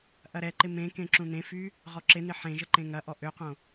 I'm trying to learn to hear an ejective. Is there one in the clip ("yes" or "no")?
no